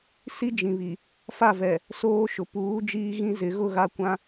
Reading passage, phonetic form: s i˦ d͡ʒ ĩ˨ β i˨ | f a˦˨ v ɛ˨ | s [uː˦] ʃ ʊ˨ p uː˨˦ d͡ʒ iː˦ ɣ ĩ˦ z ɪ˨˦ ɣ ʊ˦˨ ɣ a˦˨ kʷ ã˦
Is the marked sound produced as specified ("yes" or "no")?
no